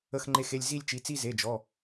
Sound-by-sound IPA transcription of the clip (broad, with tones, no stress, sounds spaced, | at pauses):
ə˥˧ x ŋ͡ǃ e˥˧ x e˥˧ lʲ z i˥˧ lʲ t͡ʃ i˩˧˩ t͡s i˥˧ z e˩˧˩ d͡ʒ ɔ˩˧˩